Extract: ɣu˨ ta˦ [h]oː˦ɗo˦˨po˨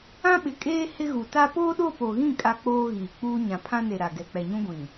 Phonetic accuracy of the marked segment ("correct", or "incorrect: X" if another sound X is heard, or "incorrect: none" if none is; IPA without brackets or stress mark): incorrect: p